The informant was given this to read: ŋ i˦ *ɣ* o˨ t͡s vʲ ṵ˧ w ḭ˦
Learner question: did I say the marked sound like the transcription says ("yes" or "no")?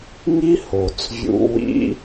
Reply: no